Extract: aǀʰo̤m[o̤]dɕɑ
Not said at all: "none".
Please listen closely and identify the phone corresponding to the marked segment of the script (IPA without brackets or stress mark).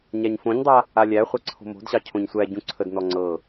o̤